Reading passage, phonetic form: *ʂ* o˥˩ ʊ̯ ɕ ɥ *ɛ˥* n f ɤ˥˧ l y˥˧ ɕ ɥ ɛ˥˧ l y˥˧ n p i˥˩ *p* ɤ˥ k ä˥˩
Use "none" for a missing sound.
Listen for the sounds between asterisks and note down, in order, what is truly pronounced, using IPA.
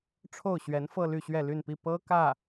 ʈ͡ʂʰ, ɛ˧˥, p

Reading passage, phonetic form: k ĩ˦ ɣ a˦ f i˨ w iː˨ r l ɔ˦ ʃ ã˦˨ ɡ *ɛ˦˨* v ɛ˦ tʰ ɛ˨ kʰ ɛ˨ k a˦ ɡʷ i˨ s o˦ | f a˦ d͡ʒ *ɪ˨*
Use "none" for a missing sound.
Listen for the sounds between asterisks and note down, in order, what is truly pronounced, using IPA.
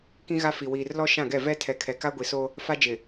ɛ˦˨, ɪ˨

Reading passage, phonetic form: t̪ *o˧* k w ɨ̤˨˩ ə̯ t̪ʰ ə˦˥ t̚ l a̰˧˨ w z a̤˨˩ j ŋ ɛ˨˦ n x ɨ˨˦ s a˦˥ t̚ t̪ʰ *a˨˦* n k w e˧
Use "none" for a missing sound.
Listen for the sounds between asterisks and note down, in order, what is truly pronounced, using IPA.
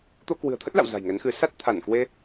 o˧, a˧˩

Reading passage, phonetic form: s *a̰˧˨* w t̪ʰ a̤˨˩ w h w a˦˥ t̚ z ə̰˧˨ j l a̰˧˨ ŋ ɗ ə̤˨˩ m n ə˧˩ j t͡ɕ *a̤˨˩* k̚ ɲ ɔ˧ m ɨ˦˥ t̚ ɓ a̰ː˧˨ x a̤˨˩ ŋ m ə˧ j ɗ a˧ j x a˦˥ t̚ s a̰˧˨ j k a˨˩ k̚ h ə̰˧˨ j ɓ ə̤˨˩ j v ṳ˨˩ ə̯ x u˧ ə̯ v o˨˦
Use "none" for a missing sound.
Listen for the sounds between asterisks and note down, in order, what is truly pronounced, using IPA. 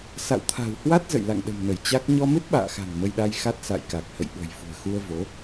a̰˧˨, a˦˥

